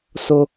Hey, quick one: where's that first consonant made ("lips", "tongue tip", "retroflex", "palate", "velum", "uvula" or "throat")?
tongue tip